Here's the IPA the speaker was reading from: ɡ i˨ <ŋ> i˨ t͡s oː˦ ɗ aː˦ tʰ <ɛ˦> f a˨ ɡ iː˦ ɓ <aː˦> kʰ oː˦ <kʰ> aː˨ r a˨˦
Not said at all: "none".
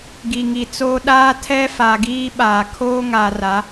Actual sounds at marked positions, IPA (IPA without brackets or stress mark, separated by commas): ŋ, ɛ˦, aː˨, ŋ